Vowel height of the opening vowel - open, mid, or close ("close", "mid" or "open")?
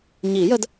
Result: close